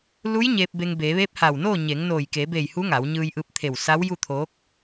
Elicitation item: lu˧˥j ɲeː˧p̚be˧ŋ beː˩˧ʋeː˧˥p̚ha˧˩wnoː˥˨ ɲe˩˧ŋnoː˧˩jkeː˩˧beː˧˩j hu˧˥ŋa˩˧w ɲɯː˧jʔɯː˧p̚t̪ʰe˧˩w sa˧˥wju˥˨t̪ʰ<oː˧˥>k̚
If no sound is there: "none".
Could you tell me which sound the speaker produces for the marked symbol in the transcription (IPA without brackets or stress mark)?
oː˧˥